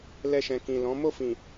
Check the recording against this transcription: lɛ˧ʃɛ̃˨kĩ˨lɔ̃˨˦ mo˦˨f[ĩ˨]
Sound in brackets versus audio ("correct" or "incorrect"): correct